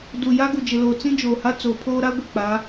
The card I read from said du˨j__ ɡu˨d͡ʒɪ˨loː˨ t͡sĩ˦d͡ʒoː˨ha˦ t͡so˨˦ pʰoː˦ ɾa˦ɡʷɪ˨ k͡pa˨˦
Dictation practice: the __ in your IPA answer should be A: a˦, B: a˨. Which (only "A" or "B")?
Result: A